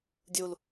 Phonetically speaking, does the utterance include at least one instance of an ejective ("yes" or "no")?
no